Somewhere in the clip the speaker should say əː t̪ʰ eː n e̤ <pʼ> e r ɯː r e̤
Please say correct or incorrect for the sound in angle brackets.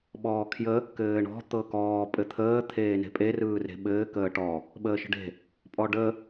correct